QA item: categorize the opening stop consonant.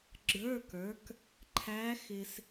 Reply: click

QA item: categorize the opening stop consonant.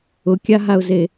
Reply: plain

